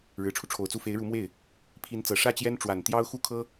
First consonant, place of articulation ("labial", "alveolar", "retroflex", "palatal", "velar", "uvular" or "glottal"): retroflex